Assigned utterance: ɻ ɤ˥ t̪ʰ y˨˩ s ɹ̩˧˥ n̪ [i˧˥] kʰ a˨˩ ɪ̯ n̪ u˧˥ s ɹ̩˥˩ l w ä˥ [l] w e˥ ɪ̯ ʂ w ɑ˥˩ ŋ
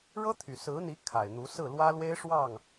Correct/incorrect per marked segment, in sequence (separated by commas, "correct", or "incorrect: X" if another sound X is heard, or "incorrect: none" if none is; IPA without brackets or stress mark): correct, correct